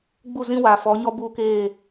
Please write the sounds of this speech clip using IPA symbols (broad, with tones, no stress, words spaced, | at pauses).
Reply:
ɡ͡bu˦˨zĩ˦wa˨ fɔ˨˦ɲɔ˦ buː˦keː˦˨